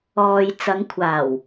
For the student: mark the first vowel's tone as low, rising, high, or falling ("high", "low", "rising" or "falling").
low